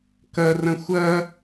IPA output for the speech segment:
kɐrɐ̃ xʷɐ

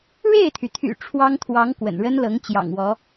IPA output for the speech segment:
ɻe˥˩ɪ̯t̪ʰy˩t̪ʰy̰˨˩ ʈ͡ʂʰwɑ˥ŋt̪ʰwɑ˧˥ŋ kwə̰˨˩nɻə˥nlɤ˧˥ŋ t͡ɕjɑ̰˨˩ŋwɔ˧˥

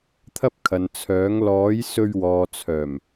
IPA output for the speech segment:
t̪ʰɐ˥p̚kʰɐ˨n t͡sʰœː˨˥ŋ lɔː˨˥jsɵ˧ɥ wɔː˨t͡sʰœː˨˩m

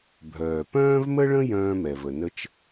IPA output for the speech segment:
bʱœː˩pœ̃ː˦vmə˦ɭə̃˦ jœ̃ː˦mɛ˩və˩nə˦t͡ʃ

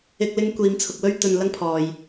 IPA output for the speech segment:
ɪ˥k̚lɪ˥ŋ kʷiː˨˧mt͡sʰʊ˨k̚ wɵ˥ɥt̪ɵ˨n lɐ˥ŋpʰɔː˨j

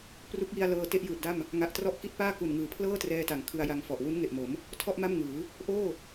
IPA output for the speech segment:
pru˦˥k̚ji˧a̯lɤː˧ te˥˩ʔjɯː˨˩t̚da˥˩m | ŋa˨˩ʔtrɔ˦˥ʔki˦˥t̚paː˥˩ ku˨˩n ŋɯː˩˦pʰlɤː˥˩trɛː˧ta˩˦ŋ kʰɯ˧a̯ja˧ŋfɔ˨˩ʔ wu˦˥nŋe˨˩ʔmo˩˦m | tʰɔ˥˩ʔ ma˥˩mŋɯː˩˦ | ʔoː˥˩

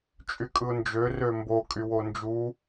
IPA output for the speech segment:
t͡ʃʼykʼɯʊ̯nd͡ʒø rømbo kʼywond͡ʒu

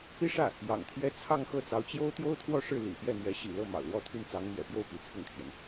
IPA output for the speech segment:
pi˥ʂä˥˩ | jɑ̰˨˩ŋt̪ʰjɛ˥ t͡sʰɑ˥˧ŋxɤ˥˩t͡sɑ˧˥ʊ̯t͡ɕjo˥ʊ̯ t̪jo˥ʊ̯t̪ʰwɔ˥˧ʂɻ̩˥˩ lḭ˨˩pjɛ˥˩n̪ɥɛ˧˥ ɕḭ˨˩lɤ˥˩ mɑ̰˨˩ʊ̯lwɔ˥˧t̪ʰy˥˩nt͡sɑ˧˥ŋ n̪ɥɛ̰˨˩pjo˥˩ʊ̯ pi˧˥t͡sʰʊ˥˩ŋt̪ʰjɛ˩n

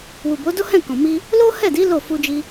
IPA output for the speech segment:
wu˨bo˨˦do˦hɛ̃˦˨ kɔ̃˨mi˧ | lo˦hɛ˦˨di˨˦ lo˦˨fu˧d͡ʒi˧

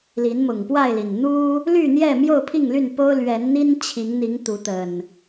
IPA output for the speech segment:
li˨˦nmʊ˨˩ŋpwa˥˨ɪ̯li˨˩n n̪u˦ | ly˥˨n̪jɛ˥˨ mjo˥˨ʊ̯pʰi˥˨ŋly˥˨npo˦ʊ̯ lɥɛ˨˦nn̪i˦n t͡ɕʰi˨˦ŋn̪i˨˦ŋ t̪u˨˦t̪ə˨˩n

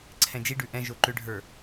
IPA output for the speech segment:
ǀʰɛ̃d͡ʒiɖʉ ʔɛ̃ʒo ǃʏɖʱə˞

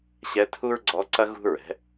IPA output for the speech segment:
ɕɛ˧˥tʰu˥ɹɡ͡ǀɔ˧˥ǀɐ˥ ɣṳ˥ɹɛ̤˩˥

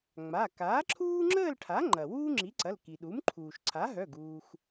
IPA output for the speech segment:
ŋ͡ma˩˧˩ kaː˩˥ǁʰuː˥ŋ͡ǁəː˥˧lʈʰa˩˥ ŋ͡ǃɐ˩ wuː˥ŋ͡ǁi˩˥ǀɐ˩˧˩l ki˩ɗu˩˥mǃʰuː˩ʃ ǀʰa˩˥ɦœ˩˧˩ɡ uː˩x

